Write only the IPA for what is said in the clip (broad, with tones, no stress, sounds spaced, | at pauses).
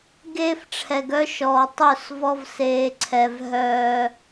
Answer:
ɡ eː˦ f ʈ͡ʂʰ ɛ˨ ɡ œ˦ ʃ ɔː˨ tˤ œ˦˨ s v ɔ˦ v s eː˨ ǀʰ ɛ˨ v ɦ œː˨